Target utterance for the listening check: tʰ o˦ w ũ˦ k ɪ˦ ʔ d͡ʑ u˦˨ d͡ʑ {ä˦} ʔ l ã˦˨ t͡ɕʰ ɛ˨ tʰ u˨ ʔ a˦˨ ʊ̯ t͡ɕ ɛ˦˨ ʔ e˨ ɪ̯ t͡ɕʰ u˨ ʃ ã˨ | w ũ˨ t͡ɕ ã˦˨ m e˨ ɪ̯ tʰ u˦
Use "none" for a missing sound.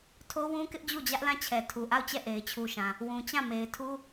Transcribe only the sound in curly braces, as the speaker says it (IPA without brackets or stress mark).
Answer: ä˦